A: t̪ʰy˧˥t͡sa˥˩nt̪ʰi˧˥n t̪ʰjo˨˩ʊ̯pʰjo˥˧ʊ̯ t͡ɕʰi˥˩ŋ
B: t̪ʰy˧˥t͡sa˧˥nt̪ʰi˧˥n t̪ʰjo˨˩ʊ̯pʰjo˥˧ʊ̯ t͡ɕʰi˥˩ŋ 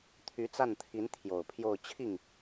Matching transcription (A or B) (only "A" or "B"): A